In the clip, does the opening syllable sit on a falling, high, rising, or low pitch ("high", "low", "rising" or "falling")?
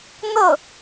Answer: falling